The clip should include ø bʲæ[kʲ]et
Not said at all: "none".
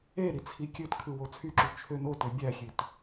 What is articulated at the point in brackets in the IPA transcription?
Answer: xʲ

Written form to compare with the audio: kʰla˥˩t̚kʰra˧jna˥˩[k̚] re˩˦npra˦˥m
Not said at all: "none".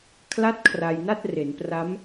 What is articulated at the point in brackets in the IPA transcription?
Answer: t̚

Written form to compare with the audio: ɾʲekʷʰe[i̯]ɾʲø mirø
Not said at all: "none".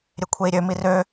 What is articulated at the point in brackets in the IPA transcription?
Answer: i̯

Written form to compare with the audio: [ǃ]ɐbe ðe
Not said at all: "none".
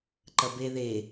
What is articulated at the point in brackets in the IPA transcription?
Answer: ǃ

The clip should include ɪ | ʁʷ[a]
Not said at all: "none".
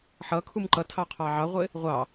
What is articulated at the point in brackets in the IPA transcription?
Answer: ɑ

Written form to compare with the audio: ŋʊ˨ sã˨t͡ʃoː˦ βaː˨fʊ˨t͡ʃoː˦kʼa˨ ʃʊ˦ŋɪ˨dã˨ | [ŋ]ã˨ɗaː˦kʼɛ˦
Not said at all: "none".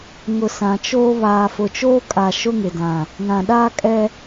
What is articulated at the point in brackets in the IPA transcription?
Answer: ŋ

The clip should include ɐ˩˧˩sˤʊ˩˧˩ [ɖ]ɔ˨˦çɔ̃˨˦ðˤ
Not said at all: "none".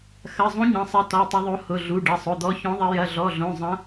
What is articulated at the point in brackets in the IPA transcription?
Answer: d̪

